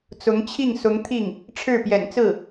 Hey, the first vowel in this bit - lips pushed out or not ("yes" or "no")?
yes